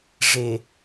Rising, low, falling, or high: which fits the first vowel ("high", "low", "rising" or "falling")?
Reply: low